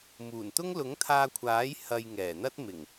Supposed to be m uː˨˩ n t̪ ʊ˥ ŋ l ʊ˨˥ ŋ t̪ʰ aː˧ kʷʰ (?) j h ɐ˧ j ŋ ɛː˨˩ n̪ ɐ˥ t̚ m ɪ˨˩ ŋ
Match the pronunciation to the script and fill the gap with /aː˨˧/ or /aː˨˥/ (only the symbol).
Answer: aː˨˥